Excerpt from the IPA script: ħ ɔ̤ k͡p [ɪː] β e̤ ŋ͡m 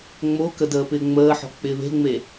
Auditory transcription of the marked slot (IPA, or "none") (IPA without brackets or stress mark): ɪː